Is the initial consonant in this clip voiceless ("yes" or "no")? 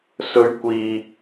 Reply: yes